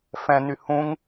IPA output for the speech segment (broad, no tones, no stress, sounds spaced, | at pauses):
f ɛ̃ n y h ũ ŋ